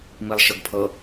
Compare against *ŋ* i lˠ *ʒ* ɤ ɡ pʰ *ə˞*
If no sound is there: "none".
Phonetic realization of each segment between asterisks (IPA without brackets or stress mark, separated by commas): m, ʃ, ɤ